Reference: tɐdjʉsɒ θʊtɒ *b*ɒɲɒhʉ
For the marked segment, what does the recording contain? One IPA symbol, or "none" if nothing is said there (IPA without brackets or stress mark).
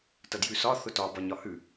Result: b